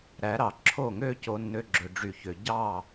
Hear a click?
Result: yes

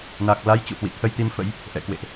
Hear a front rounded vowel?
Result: no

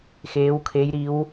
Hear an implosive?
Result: no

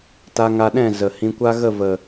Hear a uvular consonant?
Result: no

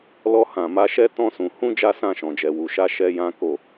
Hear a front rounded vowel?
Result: no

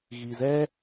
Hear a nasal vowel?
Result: no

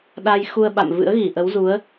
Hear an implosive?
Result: yes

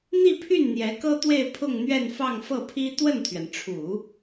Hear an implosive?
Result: no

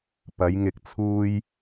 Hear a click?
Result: no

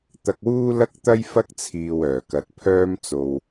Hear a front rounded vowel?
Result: yes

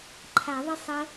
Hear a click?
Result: yes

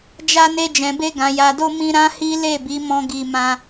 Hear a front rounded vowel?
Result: no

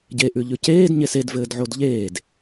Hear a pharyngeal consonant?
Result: yes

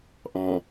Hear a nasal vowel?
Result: yes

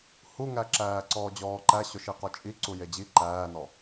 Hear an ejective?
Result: yes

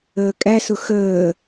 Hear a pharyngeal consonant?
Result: no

